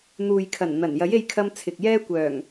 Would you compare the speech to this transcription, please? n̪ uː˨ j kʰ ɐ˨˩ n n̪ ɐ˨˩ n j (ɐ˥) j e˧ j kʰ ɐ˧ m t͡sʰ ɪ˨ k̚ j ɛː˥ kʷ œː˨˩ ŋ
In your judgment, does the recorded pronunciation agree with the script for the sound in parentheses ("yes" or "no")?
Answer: no